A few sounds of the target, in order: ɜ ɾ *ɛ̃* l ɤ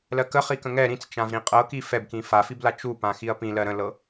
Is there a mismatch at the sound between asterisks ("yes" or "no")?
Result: yes